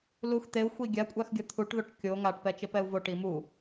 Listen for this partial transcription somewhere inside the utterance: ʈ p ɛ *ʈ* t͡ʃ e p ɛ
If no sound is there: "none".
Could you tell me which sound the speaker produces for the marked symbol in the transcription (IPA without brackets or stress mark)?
none